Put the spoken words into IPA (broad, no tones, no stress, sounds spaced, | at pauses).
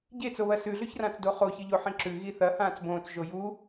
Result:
ɟ e t͡s o β ɐ s ʉ ɮ ɵ ç r ã t͡s d o χ o ç ɨ ʎ o ħ ĩ ǁ ʉ ɣ i θ ɐ h ãː t͡s b õː t͡s ʒ o j u